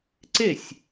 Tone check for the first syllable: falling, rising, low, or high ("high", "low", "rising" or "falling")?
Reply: falling